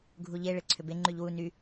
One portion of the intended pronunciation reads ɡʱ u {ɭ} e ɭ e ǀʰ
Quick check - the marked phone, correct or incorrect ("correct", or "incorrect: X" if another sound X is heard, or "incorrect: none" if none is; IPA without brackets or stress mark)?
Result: incorrect: ʎ